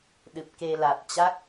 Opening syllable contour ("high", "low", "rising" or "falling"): low